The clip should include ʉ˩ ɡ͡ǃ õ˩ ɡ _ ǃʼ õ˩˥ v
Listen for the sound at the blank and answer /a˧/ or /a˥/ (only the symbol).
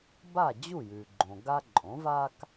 a˧